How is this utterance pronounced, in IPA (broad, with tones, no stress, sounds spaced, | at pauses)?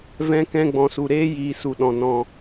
v ɛ̃˦ k ɛ̃˦ ɡ͡b ɔ̃˧ s u˨ ɾ eː˦ j iː˧ s u˧ ɗ ɔ̃˧ n ɔ̃˧